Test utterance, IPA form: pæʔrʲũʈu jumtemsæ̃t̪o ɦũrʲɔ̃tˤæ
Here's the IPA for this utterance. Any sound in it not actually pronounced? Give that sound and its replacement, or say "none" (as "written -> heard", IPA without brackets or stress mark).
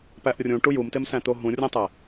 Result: ɔ̃ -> õ